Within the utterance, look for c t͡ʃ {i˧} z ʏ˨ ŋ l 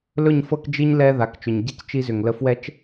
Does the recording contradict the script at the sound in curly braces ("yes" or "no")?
no